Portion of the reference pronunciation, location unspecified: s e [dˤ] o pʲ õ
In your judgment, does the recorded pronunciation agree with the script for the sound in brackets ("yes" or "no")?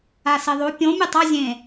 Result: no